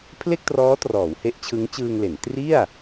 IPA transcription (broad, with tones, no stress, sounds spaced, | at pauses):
pʰ l e˥˩ k̚ t r ɔː˦˥ t r ɔː˩˦ w h e˦˥ ʔ t͡ɕʰ ɯ˦˥ ŋ t͡ɕ ɯː˧ ŋ l e˩˦ n t r i˥˩ a̯